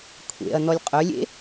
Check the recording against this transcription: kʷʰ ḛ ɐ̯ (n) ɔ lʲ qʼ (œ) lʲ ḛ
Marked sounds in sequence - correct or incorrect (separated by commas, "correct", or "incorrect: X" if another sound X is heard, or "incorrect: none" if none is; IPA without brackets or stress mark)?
correct, correct